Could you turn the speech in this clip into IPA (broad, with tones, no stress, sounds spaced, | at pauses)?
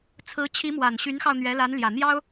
t͡sʰ ɹ̩˧˥ t͡ɕʰ i˧˥ m w a˨˩ n ɕ y˧˥ n x ɑ˧ ʊ̯ n̪ ɥ ɛ˧˥ l a˧˥ n l j ä˨˩ n̪ j ɑ˥ ʊ̯